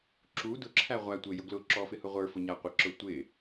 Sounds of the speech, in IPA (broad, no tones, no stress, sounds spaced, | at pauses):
ǁ u d ʊ ǁʰ æ ʁʷ æ tʷ ɪ j ʊ ɡ l ʊ ǁ ɔ f ɪ h ʊ ʁʷ ə˞ f ʊ ɲ æ qʷ ɪ ǁ ʊ tʷ ɪ